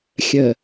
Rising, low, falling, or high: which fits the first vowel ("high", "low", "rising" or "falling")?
low